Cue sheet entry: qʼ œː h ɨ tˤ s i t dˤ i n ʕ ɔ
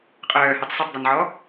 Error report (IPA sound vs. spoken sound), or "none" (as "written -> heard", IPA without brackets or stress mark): t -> tˤ